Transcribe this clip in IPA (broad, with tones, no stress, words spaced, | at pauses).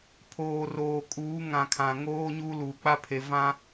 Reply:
pʰoː˨roː˨kʼuː˨˦ ŋã˨ kʰã˨ŋoː˦ɲuː˦ luː˨k͡pa˦pʰe˨ vã˦